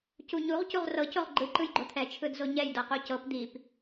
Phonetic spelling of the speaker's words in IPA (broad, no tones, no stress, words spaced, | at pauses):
cuɲuʁ cuʁrɤ coʁɡ͡ǃɯ ǃɯjɡ͡ǃot̪ʰɛ t͡ʃʰɯdzoɲɛj dɤqucɤp d̪ip